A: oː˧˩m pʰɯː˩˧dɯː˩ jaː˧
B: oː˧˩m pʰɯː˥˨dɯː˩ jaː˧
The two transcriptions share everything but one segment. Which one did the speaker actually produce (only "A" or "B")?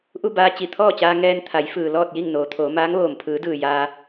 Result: A